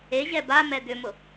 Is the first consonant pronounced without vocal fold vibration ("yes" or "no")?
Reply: no